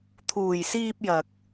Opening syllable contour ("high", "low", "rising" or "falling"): low